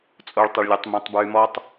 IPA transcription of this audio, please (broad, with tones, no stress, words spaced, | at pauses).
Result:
t͡sʼo˦ɭtˤə˦ɭ lʲœ˦tˤmẽ˦tˤ bɹy˦mɔ˦tˤ